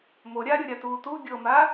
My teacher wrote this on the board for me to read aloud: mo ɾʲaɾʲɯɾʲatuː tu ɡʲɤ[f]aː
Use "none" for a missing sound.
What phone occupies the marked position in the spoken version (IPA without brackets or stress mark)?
m